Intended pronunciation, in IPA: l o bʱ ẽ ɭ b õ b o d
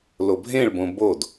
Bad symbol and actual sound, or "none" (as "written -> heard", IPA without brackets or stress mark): none